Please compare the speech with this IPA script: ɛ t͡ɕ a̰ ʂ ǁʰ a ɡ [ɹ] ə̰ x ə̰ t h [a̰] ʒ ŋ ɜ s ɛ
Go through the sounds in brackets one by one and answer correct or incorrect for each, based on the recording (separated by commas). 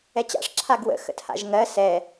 incorrect, correct